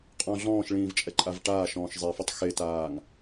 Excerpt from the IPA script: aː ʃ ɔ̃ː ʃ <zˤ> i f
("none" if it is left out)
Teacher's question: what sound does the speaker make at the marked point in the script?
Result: zˤ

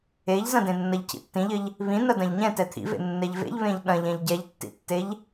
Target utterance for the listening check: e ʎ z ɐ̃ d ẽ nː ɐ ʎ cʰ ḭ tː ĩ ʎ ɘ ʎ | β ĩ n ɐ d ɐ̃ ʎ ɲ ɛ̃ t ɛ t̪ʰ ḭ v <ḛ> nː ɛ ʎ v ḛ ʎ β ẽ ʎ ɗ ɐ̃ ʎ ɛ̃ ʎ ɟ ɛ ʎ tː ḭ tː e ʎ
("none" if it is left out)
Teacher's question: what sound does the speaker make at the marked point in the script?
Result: ḛ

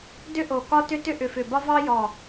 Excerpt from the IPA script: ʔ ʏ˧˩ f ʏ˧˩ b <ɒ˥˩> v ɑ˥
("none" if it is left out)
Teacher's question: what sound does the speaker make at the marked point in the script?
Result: ɒ˥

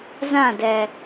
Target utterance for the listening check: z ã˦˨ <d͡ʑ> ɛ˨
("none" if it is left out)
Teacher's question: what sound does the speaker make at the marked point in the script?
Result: d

